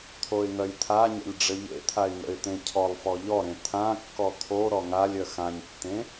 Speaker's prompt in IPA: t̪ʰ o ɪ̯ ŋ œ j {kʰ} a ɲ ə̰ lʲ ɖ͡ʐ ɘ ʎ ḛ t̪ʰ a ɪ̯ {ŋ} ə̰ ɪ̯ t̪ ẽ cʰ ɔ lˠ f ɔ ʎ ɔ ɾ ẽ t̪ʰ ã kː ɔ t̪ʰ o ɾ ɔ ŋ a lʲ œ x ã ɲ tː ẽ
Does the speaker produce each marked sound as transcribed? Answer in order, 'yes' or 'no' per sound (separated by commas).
no, yes